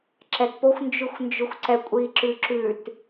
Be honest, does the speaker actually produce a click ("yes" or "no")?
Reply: yes